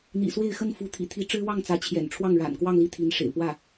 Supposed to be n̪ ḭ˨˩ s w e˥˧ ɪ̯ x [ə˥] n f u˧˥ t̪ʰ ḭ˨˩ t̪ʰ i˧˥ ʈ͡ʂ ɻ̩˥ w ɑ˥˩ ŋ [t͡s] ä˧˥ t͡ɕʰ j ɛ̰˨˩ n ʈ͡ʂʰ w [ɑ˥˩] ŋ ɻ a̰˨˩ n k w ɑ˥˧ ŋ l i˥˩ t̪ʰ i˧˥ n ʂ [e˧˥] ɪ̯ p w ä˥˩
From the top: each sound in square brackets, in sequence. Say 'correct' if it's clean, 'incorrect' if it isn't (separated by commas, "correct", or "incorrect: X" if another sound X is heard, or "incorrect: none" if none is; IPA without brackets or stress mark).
incorrect: ə˥˩, correct, correct, incorrect: ḛ˨˩